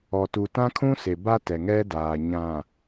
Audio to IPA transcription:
ɔ˨ t u˨ t ã˦ kʰ ũ˦ s e˨ b a˦ t ɛ˨ ŋ ɛ˦ d aː˨ ɲ ã˨

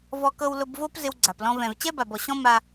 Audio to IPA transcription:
v ɔ˧ k ɤ˧ w l ʊ˧ b v o˦ p z ɪ˦ w ɡ͡ǀ a˨ p l ɔ̃˦ v ɛ̃˨ v t͡ɕ ɛ˦ b a˨ b ɔ˨ ɕ ɔ̃˦ m a˧

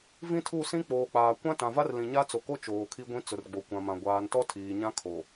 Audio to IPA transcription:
v ĩ˦ tʰ u˦˨ s ĩ˦ k͡p oː˨ k͡p aː˨ kʷ ã˦ t ã˨ v a˦ r l ĩ˨ ɲ a˦ t͡s o˨ k o˦ t͡ʃ oː˨ kʰ i˦ ɡʷ ĩ˦ t͡s ʊ˨ r ɡ͡b o˨ kʷ ã˨ m ã˨ ɡʷ aː˨ n t ɔ˦ tʰ iː˨ ɲ ã˦ kʰ o˨

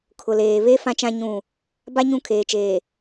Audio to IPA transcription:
kʰ ʊ˨ l eː˨ β e˦ f ã˦ t͡ʃ ã˦ ɲ ũ˦˨ | b a˦ ɲ ũ˦˨ kʰ eː˨ t͡ʃ eː˨

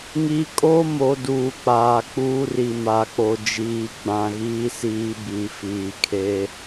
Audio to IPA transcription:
ŋ i˦ kʼ o˦ m o˨ d uː˨ k͡p aː˨ k͡p uː˦ r i˨ m a˨ k͡p o˨ d͡ʒ iː˨ ɡ͡b ã˨ ɣ iː˦ s iː˦ b i˨˦ f iː˨ kʰ e˦

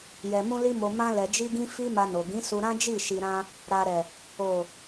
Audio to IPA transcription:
j ɛ˨ m ũ˧ l i˧ m o˨ m ã˧ l ɛ˨ d͡ʒ i˧ ɡ ĩ˧ f i˦ m a˧ n o˨ ɡ ĩ˨˦ s u˧ ɾ ã˦ d͡ʒ i˦˨ ʃ i˨ ɾ ã˧ | ɾ a˨ ɾ ɛ˨ | o˨

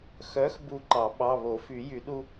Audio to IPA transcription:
x œ˨˥ x b u˧˩ ǃ ɑ˨˩˦ ɓ ɑ˩˧˩ β o˨˩˦ f y˨˩˦ j y˨˩˦ ɗ u˦

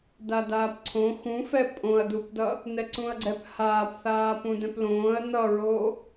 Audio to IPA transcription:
d a d aː p ǀʰ õ x ũ f ɛ pʼ õ ɐ̯ d u p d ʌ | n ɛ ǀ ũ ɐ̯ ɡ͡ǀ ɛ p h aː p θ aː p ũ d ɛ̃ p l õː ɐ̯ n ʌ ɹ oː

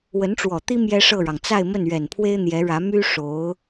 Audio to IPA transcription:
w ə˧˥ n ʈ͡ʂ w ɔ˨˩ t̪ i˥ m j ɛ˥ ʂ ɤ˥˩ ɻ ɑ˩ ŋ t͡s a˥˧ ɪ̯ m ə˥˩ n ɥ ɛ˨˩ n pʰ w e˥ ɪ̯ n̪ j ɛ˧˥ ɻ ä˧˥ m y˥ ʂ o˧˥ ʊ̯

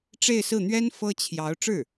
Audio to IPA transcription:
ʈ͡ʂ e˥˧ ɪ̯ s ɹ̩˥˩ n̪ ɥ ɛ˥ n f ɤ˥ t͡ɕʰ j ɑ˧˥ ʊ̯ ʈ͡ʂ ɻ̩˥˩

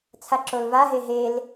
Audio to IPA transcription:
t͡sʰ a ǁ o l v a ɦ e ɦ e l

